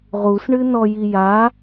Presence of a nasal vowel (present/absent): absent